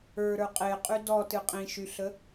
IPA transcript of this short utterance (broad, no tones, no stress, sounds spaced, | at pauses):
ə˞ ɾ ə˞ qʼ e qʼ y d ɔ t ɨ qʼ ĩ ʃ y ɬ ə